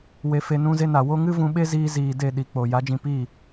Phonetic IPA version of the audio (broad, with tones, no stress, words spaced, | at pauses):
we˦fe˦ nũ˦ze˦ na˨wo˦ ŋɨ˦vũ˧ɓe˦ziː˧ ziː˨de˦˨ ɗi˨k͡po˨ ja˨˦d͡ʒĩ˧piː˦˨